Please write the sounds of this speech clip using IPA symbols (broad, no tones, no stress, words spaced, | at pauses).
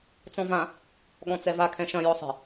t͡sɔ̃vã | ɠɔ̃t͡sɛva kʰɛ̃ʃɐ̃ jɔsˤɛ̤